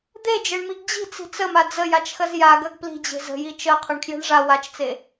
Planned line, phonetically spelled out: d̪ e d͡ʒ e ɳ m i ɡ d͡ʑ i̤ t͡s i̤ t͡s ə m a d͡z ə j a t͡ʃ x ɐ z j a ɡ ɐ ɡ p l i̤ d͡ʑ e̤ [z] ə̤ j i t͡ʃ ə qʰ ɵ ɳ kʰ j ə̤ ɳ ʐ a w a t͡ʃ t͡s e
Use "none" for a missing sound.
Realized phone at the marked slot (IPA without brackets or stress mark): z